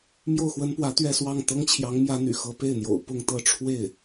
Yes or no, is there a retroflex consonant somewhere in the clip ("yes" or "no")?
yes